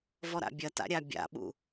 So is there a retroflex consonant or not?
no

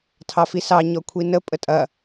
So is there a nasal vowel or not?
no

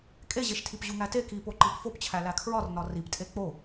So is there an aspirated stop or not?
yes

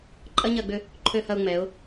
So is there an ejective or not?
yes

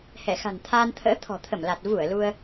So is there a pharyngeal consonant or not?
no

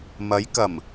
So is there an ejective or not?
no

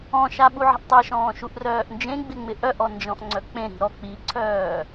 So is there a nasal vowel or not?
yes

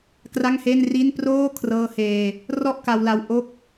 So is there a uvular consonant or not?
no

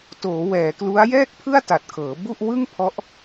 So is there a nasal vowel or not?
no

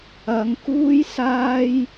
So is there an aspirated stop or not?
no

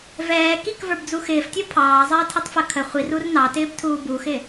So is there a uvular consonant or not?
yes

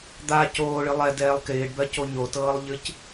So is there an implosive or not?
no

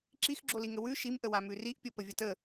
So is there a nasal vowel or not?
no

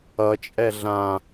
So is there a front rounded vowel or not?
no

